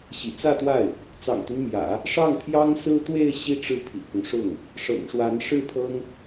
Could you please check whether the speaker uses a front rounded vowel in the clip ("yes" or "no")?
yes